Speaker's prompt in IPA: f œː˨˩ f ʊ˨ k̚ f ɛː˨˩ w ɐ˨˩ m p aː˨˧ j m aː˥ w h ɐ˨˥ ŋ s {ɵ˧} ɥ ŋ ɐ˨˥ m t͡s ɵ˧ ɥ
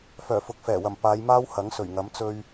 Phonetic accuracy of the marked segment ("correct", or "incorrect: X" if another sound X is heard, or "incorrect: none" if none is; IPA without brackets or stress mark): incorrect: ɵ˨˩